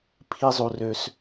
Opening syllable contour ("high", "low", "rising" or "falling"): low